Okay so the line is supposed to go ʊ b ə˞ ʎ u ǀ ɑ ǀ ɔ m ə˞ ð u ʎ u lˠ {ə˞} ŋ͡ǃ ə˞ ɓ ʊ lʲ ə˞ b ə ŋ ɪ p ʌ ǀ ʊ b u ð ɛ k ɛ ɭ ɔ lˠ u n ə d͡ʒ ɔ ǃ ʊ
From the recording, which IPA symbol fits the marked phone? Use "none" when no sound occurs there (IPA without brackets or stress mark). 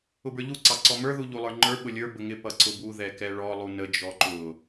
ə˞